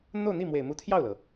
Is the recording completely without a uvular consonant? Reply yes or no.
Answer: yes